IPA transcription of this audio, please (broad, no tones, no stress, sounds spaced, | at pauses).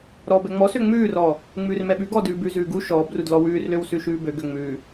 ɾ ɔː b ɛ ŋ͡m ɔ s ø ŋ͡m ʉː r ɔː | ŋ͡m ʉː r m ɛ ɓ ʉ ɡ ɔː d ʉː b ʉ z ʉː ɡ u ʃ ɔː b r u d l ɔ w ʉː r l ø w s ʉ ʃ ʉː b ø ɡ ø ŋ͡m ʉː